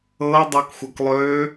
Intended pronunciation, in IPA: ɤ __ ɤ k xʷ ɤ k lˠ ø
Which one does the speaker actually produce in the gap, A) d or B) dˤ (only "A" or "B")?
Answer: B